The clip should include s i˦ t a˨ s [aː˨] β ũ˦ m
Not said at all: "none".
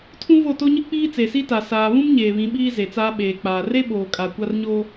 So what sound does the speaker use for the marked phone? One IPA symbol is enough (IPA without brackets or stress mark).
aː˨